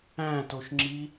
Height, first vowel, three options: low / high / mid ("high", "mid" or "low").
low